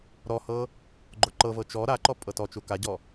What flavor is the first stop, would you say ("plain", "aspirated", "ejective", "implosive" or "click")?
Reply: click